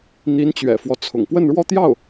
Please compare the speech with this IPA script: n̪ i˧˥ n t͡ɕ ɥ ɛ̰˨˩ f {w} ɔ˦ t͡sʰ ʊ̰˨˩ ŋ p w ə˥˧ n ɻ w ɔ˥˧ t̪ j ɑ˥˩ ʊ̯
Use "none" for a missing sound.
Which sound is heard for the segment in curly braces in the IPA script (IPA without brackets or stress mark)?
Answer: w